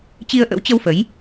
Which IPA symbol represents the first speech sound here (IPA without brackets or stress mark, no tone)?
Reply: t͡ɕ